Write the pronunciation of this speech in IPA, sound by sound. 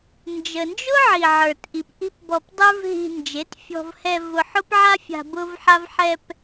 n d͡ʒ ə˧ n d͡ʒ ʊ˦ ʕ i˨ ʕ ə˞˨ t ʔ i˨ p ʔ i̤˦ p b ɔ˧ p dˤ ə˞˦ v ɦ i̤˧ n d͡ʒ e˨˦ t fʲ ɔ̤˧ v h ɛ˧ v ʊ˧ ħ ʊ˦ p ʕ a˦ fʲ a̤˧ b ʊ˦ v ħ a˦ v ħ ɛ˧ p

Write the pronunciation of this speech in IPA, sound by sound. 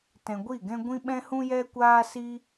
t ɛ̃˧ ɡʷ i˦˨ ɡ ɛ̃˦ ɡʷ ĩ˦ ɓ ɛ̃˦ h ũ˦ j ɛ˦ kʷ aː˦ s i˦

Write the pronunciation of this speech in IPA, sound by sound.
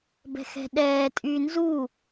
b ɛ̤ x ɛ̤ ɗ ɛː tʼ yː n z u

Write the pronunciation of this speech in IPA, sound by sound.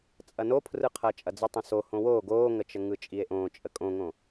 t͡sʼ ɐ n o pʰ r ɯ qʰ ɐː t͡ʃʼ ɐ d͡z ɯ tˤ ə̃ s o h õ w oː ɡ oː ŋ ə t͡ʃ ə ŋ ɯ t͡ʃʼ i e̯ ʔ õː t͡ʃʼ ə kʼ õ ŋ õ

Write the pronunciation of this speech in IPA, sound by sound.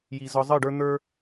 j i˨ z ɒ˧ zˤ ɨ˦˨ ɖ ə˞˦ n̪ ə˞˦

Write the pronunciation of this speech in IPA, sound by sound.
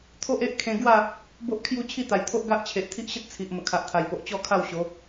t̪ʰ o˦ ʔ e˦ ʔ kʰ ẽ˧ ɡ w a˥˧ | b o˦ ʔ kʰ j u˥˧ t͡ɕʰ i˥˧ t̪ a˨˩ j t̪ʰ o˦ ʔ ɡ a˦ ʔ t͡ɕʰ e˨ ʔ t̪ʰ i˦ ʔ ɕ ə˦ t̚ t͡sʰ i˨ ʔ m ə˨˩ kʰ a˨ ʔ t̪ʰ a˨˩ j p o˨ ʔ t͡ɕ ɔ˥˧ kʰ a˥˧ w ɕ o˨˦

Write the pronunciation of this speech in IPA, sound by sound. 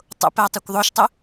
tˤ o̰ p æ tˤ ø kʷ ðˤ o ʃ tˤ ø

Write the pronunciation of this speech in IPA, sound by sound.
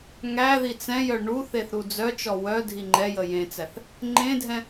ŋ æ ð i t͡s ɛ̃ j œ ɳ u θ e θ ɾ u d͡z œ t͡ʃ ɔ w œ dʱ i ŋ͡ǃ ɛ j ə j ẽ t͡s æ θ | ŋ͡ǃ ẽ dʱ ɛ̃

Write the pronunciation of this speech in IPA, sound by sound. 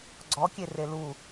ɡ͡ǀ ɔ kʲ e r e l u

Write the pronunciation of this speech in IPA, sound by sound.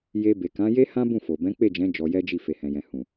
j e˧ b e˨ k ã˨˦ j e˦ h ã˦ b ũ˦˨ f o˨ b ɛ̃˨˦ k͡p e˦˨ d͡ʒ ɛ̃˨˦ d͡ʒ ɔ˧ j ɛ˦ d͡ʒ i˦˨ f e˨ h ɛ̃˨ j ɛ̃˨ h ũ˨

